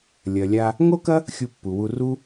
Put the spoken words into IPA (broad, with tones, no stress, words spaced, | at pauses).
lʲɐ˨lʲa˧ | ŋo˦kɐ˦ | xʲu˧pːu˨wu˧ ru˦